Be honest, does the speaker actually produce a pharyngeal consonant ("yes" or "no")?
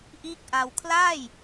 no